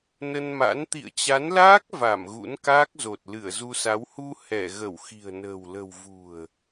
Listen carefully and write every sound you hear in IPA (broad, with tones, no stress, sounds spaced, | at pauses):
n ə˧ n m a̰˧˥ n t̪ ḭ˧˨ ə̯ t͡ɕ a˨˦ n l aː˦˥ k̚ v a˧˩ m ɣ ṵ˧˥ n k aː˦˥ k̚ z o˨˩ t̚ l ɨ˧˩ ə̯ z u˧ s a˨˦ w h u˧ h ɛ˧˩ ɣ ə˧˩ w x i̤˨˩ ə̯ n ə̤ː˨˩ w l ə̤˨˩ w v ṳ˨˩ ə̯